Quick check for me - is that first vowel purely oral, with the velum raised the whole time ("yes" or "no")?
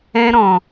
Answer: no